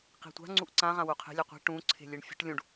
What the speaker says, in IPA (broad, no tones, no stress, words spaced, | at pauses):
qi̤tʷa̤ ŋ͡ǀuʔǀã ʁãwuqʰe̤ lʲɛqʷi̤ ʈũ ǀʰe̤lʲeɳfʲṳʈlʲũɖ